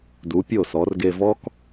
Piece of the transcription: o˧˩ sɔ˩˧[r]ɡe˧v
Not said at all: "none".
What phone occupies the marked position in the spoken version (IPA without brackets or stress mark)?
r